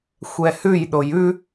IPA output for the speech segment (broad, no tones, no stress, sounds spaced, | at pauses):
xʷ ɛ h ʉ j ɗ o j ʉ